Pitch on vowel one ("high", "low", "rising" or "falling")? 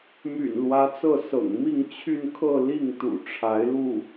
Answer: low